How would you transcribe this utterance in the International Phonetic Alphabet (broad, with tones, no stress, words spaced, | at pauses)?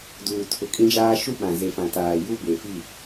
duː˨ tʰʊ˨kʼĩ˦d͡ʒaː˦ ʃu˦ɓã˨ze˨fã˨ taː˨ ju˦ be˨fi˦˨